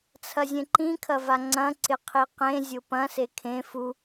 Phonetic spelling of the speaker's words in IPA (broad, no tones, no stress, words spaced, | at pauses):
t͡sʰɐzʲẽǃĩ kʰɐvaŋ͡ǀɐ̃ ǀɪqʰiqẽ zʲʊpɐ̃ sekʰẽ fu